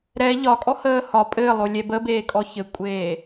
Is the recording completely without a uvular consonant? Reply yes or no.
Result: yes